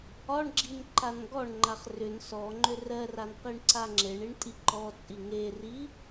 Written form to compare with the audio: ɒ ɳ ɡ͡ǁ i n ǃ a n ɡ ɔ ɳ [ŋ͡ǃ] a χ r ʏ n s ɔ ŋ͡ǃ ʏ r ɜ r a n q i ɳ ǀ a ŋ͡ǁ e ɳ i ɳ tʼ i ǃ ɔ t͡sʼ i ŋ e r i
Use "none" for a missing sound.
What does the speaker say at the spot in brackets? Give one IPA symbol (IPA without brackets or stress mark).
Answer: ŋ͡ǃ